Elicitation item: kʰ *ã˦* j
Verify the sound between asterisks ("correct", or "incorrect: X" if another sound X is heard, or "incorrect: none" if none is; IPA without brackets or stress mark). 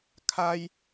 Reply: incorrect: a˦